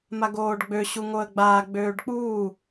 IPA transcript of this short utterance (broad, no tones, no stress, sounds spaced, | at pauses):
m a ɡ oː ɖ ɡ͡b ø ɕ u ŋ o ə̯ ɡ͡b aː ɡ͡b øː ɖ k͡p uː